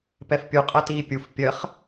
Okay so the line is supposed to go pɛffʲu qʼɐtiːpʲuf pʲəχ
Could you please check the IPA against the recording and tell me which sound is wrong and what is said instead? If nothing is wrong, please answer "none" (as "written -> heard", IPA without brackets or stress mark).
fʲ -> pʲ